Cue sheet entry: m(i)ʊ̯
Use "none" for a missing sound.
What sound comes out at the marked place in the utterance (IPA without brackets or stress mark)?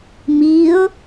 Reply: i